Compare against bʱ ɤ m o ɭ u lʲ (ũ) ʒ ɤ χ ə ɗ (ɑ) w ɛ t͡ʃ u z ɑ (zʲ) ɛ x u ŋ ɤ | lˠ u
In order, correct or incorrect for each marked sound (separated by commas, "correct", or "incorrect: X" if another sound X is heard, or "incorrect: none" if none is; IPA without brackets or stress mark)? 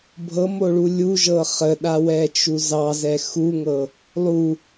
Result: incorrect: u, incorrect: a, incorrect: z